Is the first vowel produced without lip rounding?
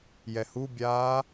yes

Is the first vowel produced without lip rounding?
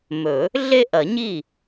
no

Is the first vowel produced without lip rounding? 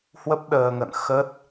yes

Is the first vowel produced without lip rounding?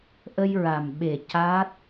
yes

